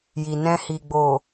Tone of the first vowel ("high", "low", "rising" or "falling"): low